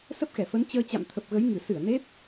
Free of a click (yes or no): yes